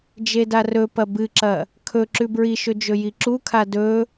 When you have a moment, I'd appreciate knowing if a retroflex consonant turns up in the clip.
no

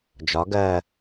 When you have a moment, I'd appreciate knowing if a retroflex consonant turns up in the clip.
no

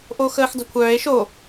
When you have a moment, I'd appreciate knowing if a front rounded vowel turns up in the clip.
yes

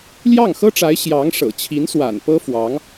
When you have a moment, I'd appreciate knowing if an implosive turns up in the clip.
no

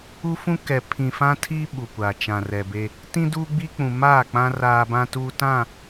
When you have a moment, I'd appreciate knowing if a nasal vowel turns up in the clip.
yes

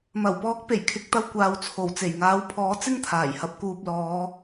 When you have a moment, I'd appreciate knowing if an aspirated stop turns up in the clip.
yes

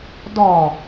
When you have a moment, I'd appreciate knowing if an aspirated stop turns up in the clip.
no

